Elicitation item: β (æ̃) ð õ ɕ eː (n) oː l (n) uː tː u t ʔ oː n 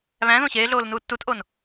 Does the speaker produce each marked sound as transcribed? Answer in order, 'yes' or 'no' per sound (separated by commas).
yes, no, yes